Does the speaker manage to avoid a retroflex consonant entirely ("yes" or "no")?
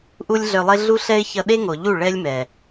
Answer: no